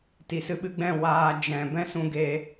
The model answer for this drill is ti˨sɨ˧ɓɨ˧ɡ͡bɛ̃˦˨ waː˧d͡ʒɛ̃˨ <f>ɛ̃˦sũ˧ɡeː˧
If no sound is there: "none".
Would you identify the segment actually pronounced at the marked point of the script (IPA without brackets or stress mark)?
b